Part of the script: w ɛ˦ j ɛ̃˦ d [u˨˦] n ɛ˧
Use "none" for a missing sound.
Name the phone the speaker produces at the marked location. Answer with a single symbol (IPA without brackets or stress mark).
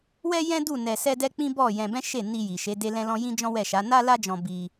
u˦˨